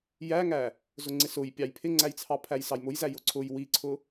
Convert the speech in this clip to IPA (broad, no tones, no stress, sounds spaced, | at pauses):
j æ ŋ æ | z ʊ ŋ͡ǀ ɪ s ʊ j pʲ ɑ j pʰ ɪ ŋ͡ǀ æ j t͡sʰ ɑ pʰ æ j s ɑ j m ʊ j z æ j ʊ ǀʰ ʊ j w i ǀʰ ʊ